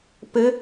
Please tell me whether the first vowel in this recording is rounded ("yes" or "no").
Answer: no